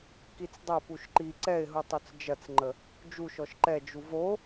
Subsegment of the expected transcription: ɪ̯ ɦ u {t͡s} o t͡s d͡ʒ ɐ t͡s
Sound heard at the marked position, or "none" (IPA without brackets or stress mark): tˤ